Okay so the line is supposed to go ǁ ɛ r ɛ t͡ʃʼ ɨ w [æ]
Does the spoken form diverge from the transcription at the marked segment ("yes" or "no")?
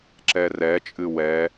yes